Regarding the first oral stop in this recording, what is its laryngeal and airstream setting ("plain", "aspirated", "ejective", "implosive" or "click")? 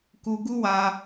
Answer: plain